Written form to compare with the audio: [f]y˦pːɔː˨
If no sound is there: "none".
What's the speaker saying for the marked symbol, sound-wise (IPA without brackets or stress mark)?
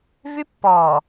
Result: v